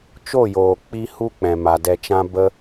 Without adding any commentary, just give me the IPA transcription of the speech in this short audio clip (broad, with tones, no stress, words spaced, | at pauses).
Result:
t͡ʃo˦˨joː˨k͡pi˧ hu˦k͡pɛ̃˨ma˨ dɛ˨t͡ʃã˧ bə˧